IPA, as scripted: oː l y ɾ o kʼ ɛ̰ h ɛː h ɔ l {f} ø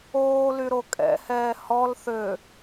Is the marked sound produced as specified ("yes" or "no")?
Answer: no